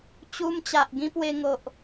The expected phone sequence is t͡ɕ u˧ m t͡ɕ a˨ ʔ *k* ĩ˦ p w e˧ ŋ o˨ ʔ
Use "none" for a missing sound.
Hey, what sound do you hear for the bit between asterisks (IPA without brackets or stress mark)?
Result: ɡ